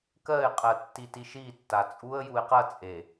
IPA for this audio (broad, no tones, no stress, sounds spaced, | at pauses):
k ɜ ɪ̯ qʼ ɜ tː i t i ʃ i tː a t͡sʼ u ə̯ j u ɪ̯ q ɐ t͡sʼ e